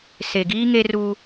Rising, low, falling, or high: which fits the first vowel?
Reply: low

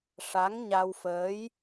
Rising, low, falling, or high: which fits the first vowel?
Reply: rising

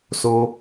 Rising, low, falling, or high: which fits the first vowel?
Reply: high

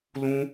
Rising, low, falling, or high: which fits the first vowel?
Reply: high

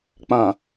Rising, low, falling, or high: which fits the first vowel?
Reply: low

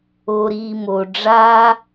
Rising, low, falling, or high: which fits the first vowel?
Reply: low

